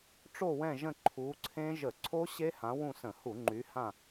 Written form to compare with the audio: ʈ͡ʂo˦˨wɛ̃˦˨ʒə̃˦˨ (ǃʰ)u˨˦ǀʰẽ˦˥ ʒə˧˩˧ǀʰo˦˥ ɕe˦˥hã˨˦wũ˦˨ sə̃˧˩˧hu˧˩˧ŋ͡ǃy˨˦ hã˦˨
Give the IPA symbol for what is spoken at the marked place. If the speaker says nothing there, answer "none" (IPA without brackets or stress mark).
ǃʰ